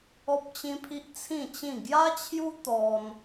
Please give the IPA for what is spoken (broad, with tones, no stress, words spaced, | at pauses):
ɔ˦p̚t͡ɕĩ˦pʰi˦ʔ t͡sʰĩ˥˧t͡ɕĩ˥˧ ɡja˦t͡ɕʰju˦ t̪ɔ˦n